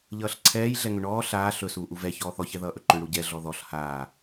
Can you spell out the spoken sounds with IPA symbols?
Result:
ʎ ʌː ɬ ǀʰ ɛː j ɮ ɛ ŋ ʏ ɳ ɔː ɬ aː ɬ ɵ s uː ʔ u v ɛ ç ɔː θ ɔ ç ɛ ð ʌː ʔ ɵ ǃ ʏ ɳ ɽ u ɟ ɛ ɮ ɔ ð ɔ ɬ h aː

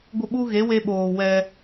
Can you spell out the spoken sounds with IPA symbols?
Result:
ɡʷ ə˦˨ ɓ u˦ ɣ e˨˦ w e˧ ɓ oː˨ w ɛ˧

